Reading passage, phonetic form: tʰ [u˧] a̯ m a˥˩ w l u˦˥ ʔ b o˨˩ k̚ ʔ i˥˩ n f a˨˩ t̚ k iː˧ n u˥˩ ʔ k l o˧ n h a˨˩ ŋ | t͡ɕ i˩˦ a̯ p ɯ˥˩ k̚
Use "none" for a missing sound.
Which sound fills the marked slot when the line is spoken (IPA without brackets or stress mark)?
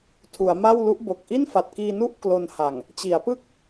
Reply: u˩˦